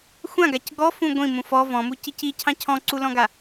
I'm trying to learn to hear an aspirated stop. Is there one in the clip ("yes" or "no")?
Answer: yes